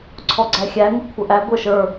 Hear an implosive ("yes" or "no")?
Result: no